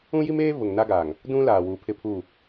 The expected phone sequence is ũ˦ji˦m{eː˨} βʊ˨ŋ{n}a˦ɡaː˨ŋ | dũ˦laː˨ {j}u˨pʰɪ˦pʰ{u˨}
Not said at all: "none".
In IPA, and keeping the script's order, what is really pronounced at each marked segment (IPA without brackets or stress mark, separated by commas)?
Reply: eː˦, n, w, u˦˨